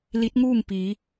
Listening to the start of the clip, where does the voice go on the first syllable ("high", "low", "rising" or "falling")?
rising